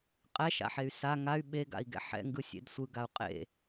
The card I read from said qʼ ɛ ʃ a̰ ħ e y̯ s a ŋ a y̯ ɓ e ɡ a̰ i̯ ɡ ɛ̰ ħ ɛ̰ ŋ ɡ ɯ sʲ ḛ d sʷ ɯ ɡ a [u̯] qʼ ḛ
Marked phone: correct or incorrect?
correct